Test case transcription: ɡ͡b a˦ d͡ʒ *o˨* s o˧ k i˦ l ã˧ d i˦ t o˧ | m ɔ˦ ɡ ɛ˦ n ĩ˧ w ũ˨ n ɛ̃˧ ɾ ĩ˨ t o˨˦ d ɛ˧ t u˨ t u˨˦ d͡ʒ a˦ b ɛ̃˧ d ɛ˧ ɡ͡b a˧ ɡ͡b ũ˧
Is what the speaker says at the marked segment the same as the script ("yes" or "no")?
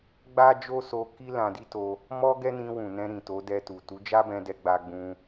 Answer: no